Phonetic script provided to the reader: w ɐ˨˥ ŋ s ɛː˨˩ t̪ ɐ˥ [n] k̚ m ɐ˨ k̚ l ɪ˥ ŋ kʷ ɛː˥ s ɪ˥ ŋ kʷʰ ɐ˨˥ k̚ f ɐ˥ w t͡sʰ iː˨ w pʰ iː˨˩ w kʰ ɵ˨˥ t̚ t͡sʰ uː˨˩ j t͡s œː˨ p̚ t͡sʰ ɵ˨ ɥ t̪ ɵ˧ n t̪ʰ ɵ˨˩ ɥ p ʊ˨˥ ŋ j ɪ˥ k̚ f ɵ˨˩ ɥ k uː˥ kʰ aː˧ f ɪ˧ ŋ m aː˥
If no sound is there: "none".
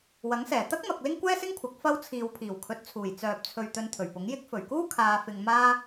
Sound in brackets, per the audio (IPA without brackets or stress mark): none